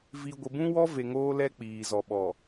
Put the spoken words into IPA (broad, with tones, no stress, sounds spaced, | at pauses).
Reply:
v i˨ ɡʷ ɪ˨ b ũ˦ w ɔ˦ v e˨ ŋ oː˦ l ɛ˦ k͡p iː˨ z ɔ˨ ɓ ɔ˨